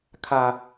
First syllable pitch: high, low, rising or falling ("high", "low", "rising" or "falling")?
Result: low